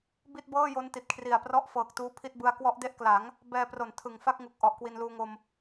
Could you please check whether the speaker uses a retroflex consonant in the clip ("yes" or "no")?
no